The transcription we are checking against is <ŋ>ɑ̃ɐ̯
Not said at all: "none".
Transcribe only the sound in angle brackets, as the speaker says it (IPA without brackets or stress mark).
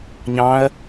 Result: ɲ